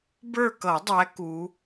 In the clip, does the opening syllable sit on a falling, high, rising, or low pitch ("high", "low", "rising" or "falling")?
falling